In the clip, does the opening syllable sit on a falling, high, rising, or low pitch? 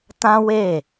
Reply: high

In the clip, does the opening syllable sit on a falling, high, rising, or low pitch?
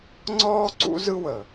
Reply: high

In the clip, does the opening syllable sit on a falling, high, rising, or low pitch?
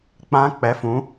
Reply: high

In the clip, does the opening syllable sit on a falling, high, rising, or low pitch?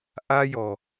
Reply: high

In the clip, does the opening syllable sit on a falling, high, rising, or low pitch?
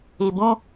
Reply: low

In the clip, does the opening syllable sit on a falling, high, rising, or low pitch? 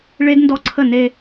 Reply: high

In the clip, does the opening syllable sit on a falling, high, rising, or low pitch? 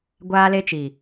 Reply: high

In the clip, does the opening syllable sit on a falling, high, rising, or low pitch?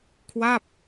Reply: falling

